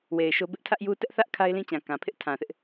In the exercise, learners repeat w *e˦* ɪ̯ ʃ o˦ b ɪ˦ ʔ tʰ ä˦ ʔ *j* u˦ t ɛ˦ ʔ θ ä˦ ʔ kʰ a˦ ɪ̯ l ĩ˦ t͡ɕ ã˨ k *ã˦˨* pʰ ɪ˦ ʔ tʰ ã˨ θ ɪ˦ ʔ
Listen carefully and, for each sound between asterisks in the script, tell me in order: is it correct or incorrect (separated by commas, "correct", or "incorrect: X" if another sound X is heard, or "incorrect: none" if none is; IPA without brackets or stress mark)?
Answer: incorrect: e˨, correct, incorrect: ã˨